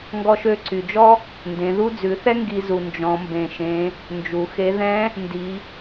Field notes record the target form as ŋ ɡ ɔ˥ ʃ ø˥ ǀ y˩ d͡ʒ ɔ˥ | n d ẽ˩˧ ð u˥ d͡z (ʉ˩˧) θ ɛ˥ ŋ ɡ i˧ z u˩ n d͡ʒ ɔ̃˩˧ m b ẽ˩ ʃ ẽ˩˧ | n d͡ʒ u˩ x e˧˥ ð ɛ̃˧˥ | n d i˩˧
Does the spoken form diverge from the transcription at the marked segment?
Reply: no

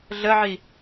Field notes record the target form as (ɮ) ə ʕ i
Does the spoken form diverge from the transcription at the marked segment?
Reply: no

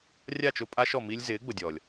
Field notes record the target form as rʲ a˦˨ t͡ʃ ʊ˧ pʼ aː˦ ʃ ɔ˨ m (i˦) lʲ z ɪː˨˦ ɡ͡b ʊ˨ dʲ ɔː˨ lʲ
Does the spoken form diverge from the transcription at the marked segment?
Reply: no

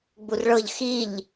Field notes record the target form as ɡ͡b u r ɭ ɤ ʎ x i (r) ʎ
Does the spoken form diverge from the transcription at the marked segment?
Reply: yes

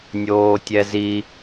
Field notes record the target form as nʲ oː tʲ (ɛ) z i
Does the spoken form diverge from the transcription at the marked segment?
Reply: no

